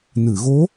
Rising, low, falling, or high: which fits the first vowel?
low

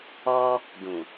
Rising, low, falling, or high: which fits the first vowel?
high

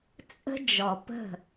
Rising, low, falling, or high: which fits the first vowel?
high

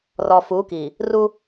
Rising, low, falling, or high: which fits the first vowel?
low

